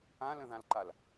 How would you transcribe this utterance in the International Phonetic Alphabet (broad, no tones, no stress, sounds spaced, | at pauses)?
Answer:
ã l ə̃ ð ã l ǃ a l